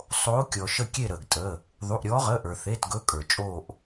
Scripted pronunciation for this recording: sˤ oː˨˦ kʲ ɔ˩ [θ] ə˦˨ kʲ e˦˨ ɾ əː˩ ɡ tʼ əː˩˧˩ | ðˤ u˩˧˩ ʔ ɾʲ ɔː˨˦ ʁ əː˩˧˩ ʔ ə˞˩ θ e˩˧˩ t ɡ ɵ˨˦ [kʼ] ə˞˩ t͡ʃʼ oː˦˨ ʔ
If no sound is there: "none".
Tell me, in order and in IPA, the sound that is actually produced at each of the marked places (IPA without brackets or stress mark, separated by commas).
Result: ʃ, kʼ